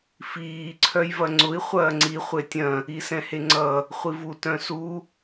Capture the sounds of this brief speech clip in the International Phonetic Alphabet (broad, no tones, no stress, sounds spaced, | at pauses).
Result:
f iː ǀʰ œ j v ɐ ŋ͡ǀ ʊ i̯ χʷ ɐː ŋ͡ǀ i χʷ e tʲ ɐ̃ | i s ɛ̃ h e ŋ͡ǀ ʌ | χʷ i v u t œ̃ s u